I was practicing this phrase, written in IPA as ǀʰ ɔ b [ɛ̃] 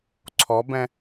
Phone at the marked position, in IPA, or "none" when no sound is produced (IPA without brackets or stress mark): ɛ̃